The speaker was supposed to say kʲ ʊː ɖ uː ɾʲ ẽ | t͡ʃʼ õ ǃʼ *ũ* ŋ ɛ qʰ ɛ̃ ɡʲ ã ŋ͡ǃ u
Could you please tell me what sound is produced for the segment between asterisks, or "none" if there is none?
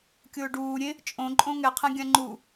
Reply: õ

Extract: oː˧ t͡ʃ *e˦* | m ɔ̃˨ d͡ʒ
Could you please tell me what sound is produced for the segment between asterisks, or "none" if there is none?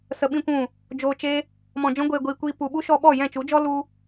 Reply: e˦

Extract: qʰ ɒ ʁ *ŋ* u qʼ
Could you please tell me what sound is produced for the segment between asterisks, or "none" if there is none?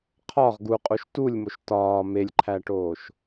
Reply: ɡ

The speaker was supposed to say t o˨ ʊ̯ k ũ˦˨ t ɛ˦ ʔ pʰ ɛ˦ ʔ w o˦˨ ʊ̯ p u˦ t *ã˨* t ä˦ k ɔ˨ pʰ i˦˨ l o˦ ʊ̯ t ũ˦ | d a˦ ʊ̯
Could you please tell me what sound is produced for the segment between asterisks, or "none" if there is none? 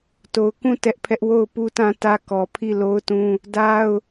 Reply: ã˦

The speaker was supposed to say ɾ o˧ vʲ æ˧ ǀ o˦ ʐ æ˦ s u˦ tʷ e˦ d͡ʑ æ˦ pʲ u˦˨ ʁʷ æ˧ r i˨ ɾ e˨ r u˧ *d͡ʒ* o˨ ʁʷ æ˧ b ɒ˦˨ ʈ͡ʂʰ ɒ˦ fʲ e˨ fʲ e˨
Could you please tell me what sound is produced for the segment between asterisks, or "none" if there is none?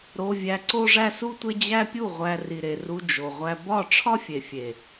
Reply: d͡ʒ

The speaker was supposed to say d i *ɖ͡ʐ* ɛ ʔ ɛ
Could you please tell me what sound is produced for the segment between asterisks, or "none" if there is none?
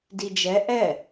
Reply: d͡ʒ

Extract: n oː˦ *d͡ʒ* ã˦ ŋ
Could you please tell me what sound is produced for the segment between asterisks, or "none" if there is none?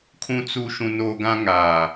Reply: ɡ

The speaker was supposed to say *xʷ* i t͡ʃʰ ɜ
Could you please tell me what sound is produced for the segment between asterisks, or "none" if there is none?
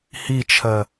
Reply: h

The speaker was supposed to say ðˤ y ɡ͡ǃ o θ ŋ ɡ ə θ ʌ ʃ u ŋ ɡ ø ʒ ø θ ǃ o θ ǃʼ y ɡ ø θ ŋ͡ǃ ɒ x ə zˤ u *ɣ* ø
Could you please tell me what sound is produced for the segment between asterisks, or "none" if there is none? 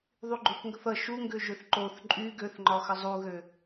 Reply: ɣ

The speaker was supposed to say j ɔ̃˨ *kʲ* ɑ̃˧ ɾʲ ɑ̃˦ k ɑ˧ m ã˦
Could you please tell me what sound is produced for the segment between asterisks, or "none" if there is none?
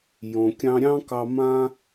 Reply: kʲ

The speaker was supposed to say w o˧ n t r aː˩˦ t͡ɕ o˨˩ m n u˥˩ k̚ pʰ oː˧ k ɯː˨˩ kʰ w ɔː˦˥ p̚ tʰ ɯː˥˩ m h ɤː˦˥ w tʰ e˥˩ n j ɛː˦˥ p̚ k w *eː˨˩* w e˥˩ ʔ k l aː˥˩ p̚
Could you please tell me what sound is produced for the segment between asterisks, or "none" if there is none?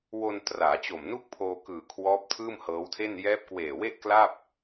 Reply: eː˨˩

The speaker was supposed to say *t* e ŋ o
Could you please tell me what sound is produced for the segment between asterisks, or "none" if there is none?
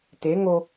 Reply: t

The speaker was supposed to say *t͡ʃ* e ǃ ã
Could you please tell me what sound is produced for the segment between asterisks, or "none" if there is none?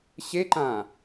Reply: ɕ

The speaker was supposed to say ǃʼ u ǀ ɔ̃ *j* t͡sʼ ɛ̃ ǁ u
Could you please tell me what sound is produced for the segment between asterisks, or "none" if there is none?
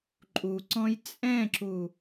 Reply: j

